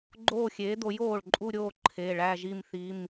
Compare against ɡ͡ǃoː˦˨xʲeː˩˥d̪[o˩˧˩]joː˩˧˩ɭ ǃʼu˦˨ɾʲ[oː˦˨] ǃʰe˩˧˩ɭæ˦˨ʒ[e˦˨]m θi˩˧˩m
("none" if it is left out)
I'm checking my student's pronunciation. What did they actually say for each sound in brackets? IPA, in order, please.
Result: o˩˥, oː˦˨, i˦˨

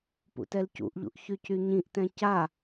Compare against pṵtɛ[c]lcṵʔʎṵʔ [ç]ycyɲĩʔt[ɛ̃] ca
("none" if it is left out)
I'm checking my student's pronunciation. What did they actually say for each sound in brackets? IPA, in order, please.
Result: none, ç, ɛ̃

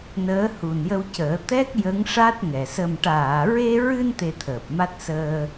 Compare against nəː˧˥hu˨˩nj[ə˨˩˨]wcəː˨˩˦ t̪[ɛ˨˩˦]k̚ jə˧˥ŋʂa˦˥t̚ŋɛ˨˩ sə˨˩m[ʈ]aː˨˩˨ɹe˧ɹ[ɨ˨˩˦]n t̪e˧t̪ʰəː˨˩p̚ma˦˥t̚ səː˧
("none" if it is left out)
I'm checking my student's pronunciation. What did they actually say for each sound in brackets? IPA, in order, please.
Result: ə˧, ɛ˦˥, ʈ, ɨ˧

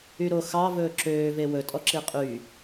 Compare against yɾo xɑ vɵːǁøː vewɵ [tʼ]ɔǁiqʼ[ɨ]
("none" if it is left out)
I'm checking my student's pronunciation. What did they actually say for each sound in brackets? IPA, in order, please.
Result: tʼ, y

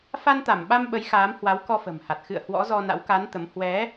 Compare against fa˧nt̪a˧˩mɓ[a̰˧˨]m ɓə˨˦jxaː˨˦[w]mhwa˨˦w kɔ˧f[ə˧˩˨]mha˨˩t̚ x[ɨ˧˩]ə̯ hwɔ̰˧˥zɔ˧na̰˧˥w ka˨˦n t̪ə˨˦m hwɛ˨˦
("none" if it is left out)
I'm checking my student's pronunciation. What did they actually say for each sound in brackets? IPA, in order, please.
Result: a˧, none, ə̤˨˩, ɨ̰˧˨

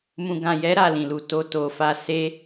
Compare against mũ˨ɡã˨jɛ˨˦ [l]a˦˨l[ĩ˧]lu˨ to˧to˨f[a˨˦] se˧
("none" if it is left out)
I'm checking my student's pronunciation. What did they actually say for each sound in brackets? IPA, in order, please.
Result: ɾ, ĩ˨, a˧

